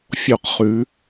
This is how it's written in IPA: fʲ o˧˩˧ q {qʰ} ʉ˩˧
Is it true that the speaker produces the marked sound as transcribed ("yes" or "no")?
no